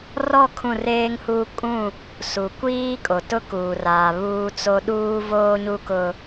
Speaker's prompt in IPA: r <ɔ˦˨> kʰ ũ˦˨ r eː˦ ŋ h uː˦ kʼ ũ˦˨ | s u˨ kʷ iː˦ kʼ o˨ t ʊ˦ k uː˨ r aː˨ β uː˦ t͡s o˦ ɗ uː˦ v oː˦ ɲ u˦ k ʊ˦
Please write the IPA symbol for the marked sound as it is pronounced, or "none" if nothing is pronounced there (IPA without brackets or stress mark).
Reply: ɔ˦˨